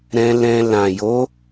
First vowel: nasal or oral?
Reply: nasal